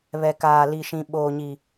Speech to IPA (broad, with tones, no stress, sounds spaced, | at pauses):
β ɛ˨ k aː˨ l i˨ ʃ ĩ˨ ɓ oː˨ ɲ i˨